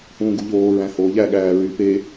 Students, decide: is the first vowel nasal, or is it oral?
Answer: nasal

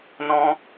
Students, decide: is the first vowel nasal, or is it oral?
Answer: nasal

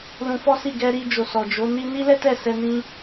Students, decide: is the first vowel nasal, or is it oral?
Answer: nasal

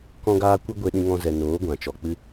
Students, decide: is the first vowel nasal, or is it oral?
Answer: nasal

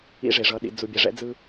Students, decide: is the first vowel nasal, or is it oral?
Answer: oral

